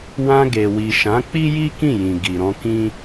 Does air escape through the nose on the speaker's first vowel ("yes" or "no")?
yes